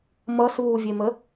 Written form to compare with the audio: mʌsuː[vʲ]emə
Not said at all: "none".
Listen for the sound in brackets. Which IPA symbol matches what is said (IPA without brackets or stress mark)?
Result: vʲ